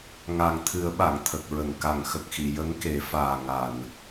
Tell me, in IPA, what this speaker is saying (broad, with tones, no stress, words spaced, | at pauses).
ŋa˨˩ŋt̪ʰɨ˨˩˦ə̯ ɓa˨˩˨ŋt̪ʰə˨˩k̚ɹə˨˩˨ŋ ka˨˩˨ŋxə˨˩k̚xi˨˩˨ jə˧˥ŋke˨˩˦faː˨˩ ŋa˨˩˨n